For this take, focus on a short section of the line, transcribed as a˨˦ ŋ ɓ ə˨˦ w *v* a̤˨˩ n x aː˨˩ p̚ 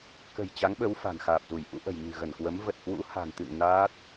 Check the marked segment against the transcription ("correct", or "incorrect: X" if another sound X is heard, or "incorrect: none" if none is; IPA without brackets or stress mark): incorrect: f